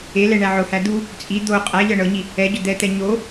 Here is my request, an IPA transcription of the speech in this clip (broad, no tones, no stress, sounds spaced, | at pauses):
e l ɛ ɳ æ ʕ ʊ h æ d̪ u | t͡sʼ i d̪ o qʼ æ ʎ ɤ ɳ ɤ ɲ i | ɛ ɟ ʊ d̪ ɛ t̪ ɛ ɲ o